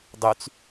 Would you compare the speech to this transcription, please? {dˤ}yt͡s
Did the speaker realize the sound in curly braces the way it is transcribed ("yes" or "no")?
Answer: yes